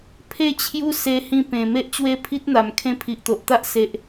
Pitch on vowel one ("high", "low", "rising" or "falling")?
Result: falling